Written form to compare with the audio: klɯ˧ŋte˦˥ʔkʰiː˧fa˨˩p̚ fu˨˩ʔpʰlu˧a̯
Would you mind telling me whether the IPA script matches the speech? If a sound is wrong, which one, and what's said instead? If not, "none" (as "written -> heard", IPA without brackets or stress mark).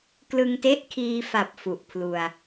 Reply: none